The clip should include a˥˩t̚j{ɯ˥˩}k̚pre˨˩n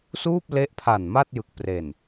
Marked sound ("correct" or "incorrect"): incorrect